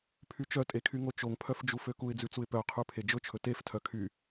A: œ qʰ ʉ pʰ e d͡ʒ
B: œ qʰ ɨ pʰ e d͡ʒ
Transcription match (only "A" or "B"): A